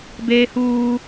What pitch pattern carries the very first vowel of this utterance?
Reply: high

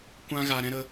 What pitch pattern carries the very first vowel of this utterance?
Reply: high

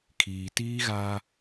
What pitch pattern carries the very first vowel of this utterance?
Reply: low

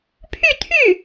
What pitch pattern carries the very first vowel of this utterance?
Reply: falling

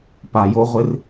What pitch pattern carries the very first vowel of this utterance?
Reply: low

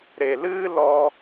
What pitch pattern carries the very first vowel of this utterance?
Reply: low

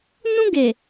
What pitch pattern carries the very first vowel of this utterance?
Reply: high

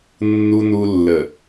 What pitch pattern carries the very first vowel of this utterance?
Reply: low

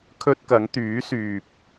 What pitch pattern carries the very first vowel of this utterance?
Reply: high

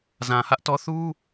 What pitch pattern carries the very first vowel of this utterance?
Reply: low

